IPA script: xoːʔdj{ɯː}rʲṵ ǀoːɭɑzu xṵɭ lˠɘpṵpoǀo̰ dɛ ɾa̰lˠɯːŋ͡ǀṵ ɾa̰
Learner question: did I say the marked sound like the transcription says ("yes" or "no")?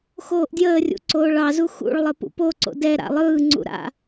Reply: no